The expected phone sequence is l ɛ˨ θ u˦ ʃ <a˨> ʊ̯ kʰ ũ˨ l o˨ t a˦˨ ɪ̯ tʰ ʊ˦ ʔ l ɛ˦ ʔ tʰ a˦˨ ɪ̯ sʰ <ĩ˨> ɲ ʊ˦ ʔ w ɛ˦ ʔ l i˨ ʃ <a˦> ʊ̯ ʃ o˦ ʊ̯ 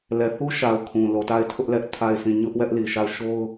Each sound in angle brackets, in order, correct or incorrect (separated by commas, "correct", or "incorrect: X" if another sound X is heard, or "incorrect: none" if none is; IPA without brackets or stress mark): correct, incorrect: ĩ˦˨, incorrect: a˦˨